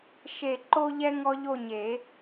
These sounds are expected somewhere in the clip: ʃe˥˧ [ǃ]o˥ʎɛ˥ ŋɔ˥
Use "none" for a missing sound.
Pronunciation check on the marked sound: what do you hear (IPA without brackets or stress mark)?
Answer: ǃ